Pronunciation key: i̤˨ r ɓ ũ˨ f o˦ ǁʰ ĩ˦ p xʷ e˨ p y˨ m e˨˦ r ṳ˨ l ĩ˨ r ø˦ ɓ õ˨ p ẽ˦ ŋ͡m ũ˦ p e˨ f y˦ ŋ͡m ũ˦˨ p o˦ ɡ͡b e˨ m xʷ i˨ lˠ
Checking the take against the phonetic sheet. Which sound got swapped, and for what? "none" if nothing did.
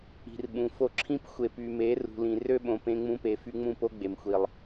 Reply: none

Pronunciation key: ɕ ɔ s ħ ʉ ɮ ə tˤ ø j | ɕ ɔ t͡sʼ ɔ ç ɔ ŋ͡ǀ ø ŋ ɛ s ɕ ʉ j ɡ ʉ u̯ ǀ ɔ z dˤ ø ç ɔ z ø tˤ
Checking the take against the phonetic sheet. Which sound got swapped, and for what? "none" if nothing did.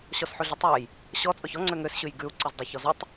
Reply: ɛ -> ø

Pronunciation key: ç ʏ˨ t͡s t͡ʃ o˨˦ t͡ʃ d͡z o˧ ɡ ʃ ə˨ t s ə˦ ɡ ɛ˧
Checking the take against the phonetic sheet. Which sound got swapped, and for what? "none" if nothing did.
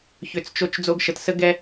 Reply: none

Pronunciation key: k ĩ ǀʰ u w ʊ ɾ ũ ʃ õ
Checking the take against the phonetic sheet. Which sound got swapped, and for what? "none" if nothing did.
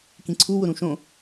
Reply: none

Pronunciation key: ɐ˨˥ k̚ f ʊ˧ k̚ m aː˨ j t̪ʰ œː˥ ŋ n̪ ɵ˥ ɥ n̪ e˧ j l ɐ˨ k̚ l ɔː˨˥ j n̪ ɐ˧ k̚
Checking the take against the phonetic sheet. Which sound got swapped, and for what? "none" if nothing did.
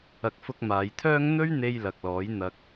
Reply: none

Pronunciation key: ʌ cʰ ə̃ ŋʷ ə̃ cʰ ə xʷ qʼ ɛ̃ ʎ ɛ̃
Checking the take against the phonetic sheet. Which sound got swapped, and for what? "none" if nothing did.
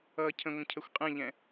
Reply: none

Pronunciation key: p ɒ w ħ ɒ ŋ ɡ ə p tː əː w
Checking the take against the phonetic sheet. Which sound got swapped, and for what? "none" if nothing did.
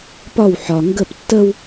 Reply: əː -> ə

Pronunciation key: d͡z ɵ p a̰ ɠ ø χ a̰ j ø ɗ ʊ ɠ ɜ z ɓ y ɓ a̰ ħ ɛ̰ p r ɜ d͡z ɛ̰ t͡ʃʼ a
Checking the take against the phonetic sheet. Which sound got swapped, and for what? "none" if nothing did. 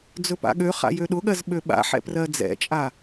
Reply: y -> ø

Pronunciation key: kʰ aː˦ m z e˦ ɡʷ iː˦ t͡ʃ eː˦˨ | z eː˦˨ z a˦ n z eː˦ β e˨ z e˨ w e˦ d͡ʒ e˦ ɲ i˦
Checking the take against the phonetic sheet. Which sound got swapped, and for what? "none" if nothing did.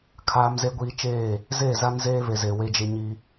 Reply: none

